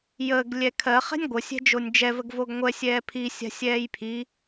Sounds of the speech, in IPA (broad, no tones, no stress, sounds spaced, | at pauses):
j əː ɡ lʲ ɛ kʰ ɜ χ ɛ̤ nʲ ɡʷ ə sʲ ɛ̤ d͡ʒ o nʲ d͡ʒ ɛ v ə ɡ v o ɡ ŋʷ ɛ sʲ ɛː pʰ i sʲ a̤ sʲ ɛː j pʰ i